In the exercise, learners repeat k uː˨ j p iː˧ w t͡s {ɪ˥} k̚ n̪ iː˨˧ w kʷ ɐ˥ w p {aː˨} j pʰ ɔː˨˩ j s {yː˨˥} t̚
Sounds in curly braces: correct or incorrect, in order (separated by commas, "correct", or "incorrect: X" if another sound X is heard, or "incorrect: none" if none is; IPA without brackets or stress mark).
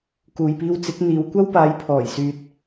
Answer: incorrect: ɪ˨˥, incorrect: aː˨˧, incorrect: yː˨